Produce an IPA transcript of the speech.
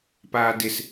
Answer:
p aː d ɪ s

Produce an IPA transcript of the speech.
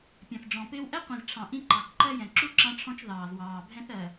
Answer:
pʲ ɛ̃˨ θ ɖ͡ʐ ɔ̃˨ p ɪː˦ w ʔ ɛ˦ qʷ ĩ˨ z ʈ͡ʂʰ ɑ̃˨ ʔ ĩ˦ ǃ ɑ˨ k ǃ ɜ˦ j ɛ̃˨ ǁ u˦ ǁ ɑ̃˦ ʈ͡ʂʰ ɔ̃˦ t͡ʃ ð ɑː˨ z w ɑː˨ bʱ ɛ̃˦ θ ɜ˨

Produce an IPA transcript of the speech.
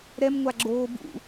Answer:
ɾ ɛ m ŋʷ a ɡ͡ǁ oː b ṵ

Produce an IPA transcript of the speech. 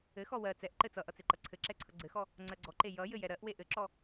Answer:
ɘ x ɔ w ɜ t͡s ɛ ʔ ǃ ɘ t͡s ʌ ʔ ʌ t͡s e ǃ ʌ ǀʰ ɘ ǁ ɛ ǀʰ ʌ ɡ͡ǀ ɘ x ɔ | ŋ͡ǀ ɜ ɡ͡ǀ ɔ ǃ e j ʌ j ɘ j ɛ ɾ ɜ ʔ w e ʔ ɘ ǁ ɔ

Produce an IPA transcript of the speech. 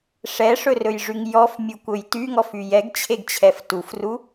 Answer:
ʂ ɛ ʂ ɵ r ɵ j ʐ y ŋ j ɔ f mʲ u kʷ ɵ j t y ŋ ɔ f y j ɛ ɡ t͡ɕʰ e ɡ t͡ɕʰ ɛ f t u f r u

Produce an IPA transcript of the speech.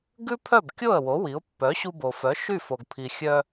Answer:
ɡ ʉ˥ pʰ œ˥˩ b kʲ o˥˩ ə̯ w o˩˥ w i˩˥ ʊ̯ pː œ˩˥ ɕ u˧ b o˩ f œ˩˥ ʃ y˥˩ f o˩ ɡ pʰ i˩ xʲ œ˧

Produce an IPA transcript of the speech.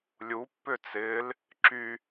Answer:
lʲ u pː ʏ t͡s ɪː l | ǁ y

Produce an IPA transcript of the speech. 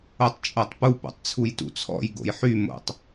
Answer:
o tˤ t͡ʃʼ o tˤ p u p o̰ tˤ t͡sʰ u j t ṵ t͡sʰ ɔ̰ j ɡ o̰ j ħ y m o̰ tˤ

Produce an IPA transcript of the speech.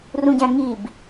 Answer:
r ũ ɟ æ̃ ŋ i b

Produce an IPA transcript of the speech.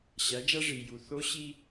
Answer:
ɕ æ˩˧ d͡ʒ æ˧ ʐ i˩ j u˩ θ o˧˥ ɕ i˧

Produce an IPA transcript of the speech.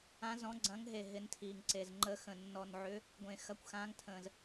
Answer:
ã˨˦ z ɔ̃˨˦ ɡ͡ǀ ɐ̃˨˦ ŋ ɦ e˨˩ ɦ ɪ˨˦ n tʰ iː˨˩ ŋ ǀ e˨˩ z ŋ͡ǃ ə˨˦ x ə̃˨˩ nː ɔ˨˩ n ʕ ʏ˨˦ | ɡʷ ẽ˨˩ x ɐ˨˦ kʷ x ãː˨˦ ŋ tʰ ə̃ː˨˩ z

